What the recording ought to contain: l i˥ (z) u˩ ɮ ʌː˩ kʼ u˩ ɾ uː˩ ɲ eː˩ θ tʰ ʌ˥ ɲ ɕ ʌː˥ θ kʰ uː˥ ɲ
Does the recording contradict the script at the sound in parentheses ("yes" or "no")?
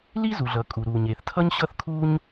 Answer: no